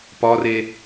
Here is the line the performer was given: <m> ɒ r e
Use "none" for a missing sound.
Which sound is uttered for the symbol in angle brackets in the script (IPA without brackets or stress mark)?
p